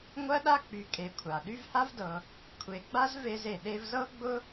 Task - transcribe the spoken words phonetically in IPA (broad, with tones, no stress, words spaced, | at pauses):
ŋʷɜ˦ɗa˦k͡py˨ kʼe˨kʷʰa˩ ɗy˦vha˥vdɤ˨ | kʷʰe˨ɡ͡ba˥z ve˦ze˨ɗe˥v zɤ˥ɡ͡bʊ˥